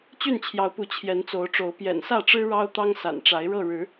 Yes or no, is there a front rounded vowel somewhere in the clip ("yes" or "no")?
yes